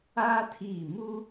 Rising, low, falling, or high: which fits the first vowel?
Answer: high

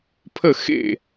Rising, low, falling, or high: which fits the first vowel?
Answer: falling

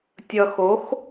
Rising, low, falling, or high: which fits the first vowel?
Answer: low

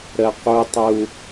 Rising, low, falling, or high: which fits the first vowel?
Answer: high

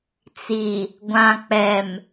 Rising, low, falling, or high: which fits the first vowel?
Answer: low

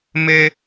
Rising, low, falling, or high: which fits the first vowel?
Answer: high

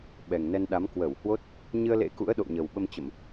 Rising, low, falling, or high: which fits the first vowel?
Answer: low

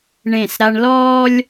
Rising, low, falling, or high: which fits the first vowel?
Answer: falling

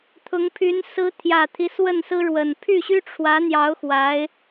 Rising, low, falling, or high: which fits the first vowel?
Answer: rising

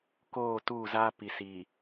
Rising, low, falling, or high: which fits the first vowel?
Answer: falling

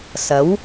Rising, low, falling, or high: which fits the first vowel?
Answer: rising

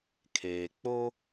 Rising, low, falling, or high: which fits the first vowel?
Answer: low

